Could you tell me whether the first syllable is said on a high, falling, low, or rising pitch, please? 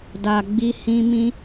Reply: low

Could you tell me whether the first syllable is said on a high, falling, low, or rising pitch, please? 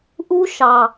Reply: high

